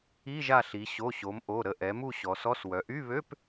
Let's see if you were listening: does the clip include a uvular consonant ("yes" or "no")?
no